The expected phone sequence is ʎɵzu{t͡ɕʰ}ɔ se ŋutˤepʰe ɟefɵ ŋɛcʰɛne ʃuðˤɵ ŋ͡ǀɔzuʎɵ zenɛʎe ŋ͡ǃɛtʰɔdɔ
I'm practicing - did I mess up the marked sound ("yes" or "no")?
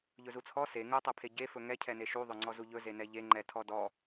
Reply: yes